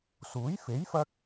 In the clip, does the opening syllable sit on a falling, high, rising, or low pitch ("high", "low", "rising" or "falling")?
rising